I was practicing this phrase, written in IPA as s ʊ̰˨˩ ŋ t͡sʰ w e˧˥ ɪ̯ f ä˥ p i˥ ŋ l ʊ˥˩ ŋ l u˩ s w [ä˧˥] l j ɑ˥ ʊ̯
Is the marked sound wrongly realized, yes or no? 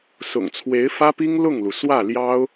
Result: yes